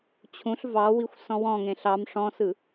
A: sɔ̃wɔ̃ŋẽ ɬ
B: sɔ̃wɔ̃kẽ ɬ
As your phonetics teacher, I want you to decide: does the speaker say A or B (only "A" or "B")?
A